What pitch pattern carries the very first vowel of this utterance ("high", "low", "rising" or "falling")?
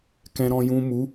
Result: low